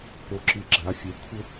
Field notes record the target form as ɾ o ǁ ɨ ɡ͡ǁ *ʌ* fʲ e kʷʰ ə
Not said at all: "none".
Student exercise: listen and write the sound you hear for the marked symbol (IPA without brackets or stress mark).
a